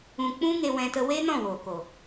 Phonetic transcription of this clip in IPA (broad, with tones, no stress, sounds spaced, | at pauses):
ũ˧ k͡p ũ˦ ŋ e˧ w ɛ̃˧ t ə˧ w e˦ n ɔ̃˦˨ w oː˨ k o˨